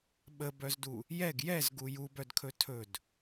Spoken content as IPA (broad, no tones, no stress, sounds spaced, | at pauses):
ɓ ə b œ z d u | j ɛ ɡ j ɛ z ɡ u j u b œ d kʰ ɵ tʰ ɵ d